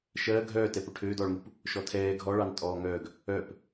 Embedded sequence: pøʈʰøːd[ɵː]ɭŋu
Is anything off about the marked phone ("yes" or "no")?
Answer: yes